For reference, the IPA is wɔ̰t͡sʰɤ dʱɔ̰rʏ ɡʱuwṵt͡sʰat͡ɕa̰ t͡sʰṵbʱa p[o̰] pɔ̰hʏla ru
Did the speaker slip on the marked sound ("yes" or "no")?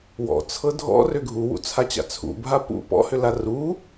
yes